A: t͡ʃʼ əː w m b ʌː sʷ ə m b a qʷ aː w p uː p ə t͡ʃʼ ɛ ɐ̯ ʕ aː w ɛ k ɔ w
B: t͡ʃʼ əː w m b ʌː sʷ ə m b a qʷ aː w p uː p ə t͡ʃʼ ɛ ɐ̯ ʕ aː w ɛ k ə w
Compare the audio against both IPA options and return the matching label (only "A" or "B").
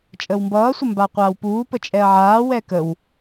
B